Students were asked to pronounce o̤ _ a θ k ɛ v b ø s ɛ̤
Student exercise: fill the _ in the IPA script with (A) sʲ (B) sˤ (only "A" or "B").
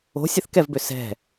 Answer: A